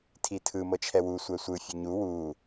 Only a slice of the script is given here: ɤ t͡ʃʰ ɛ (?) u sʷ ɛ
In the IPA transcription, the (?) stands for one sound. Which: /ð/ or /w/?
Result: w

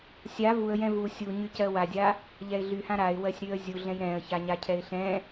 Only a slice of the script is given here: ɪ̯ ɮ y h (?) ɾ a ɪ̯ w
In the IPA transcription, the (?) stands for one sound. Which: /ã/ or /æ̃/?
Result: ã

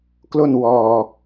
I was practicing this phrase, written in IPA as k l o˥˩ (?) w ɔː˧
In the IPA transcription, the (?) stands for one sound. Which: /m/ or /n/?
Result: n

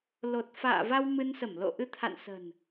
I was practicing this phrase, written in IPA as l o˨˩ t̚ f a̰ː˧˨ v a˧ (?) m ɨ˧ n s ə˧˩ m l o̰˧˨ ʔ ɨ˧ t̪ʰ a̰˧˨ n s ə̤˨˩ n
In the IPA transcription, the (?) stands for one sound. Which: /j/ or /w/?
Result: w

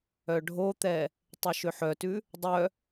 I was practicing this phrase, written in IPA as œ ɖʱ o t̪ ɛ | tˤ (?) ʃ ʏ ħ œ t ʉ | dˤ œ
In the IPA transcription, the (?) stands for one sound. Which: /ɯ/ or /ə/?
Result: ɯ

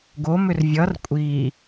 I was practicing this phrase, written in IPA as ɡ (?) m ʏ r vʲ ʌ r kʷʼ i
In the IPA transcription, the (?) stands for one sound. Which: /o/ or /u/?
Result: o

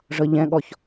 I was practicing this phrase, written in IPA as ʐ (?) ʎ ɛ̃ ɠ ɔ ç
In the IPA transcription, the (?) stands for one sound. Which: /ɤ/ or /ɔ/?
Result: ɤ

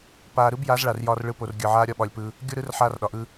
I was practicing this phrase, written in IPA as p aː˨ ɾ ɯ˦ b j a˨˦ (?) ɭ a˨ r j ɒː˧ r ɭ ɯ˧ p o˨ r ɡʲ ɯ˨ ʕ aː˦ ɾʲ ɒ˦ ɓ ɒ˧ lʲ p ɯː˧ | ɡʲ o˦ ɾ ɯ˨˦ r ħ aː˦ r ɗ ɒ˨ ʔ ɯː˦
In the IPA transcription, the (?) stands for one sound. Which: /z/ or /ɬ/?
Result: z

